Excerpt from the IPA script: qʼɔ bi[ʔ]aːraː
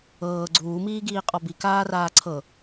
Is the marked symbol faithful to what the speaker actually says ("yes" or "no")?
no